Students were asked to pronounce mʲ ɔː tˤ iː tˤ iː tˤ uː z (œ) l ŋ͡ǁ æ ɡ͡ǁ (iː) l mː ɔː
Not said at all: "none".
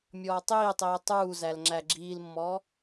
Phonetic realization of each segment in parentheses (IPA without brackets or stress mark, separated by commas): æ, iː